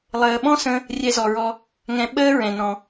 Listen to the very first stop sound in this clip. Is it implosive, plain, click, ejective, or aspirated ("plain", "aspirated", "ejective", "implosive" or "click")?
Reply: implosive